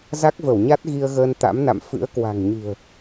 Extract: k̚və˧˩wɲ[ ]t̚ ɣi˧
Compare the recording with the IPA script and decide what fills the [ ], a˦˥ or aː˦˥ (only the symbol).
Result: a˦˥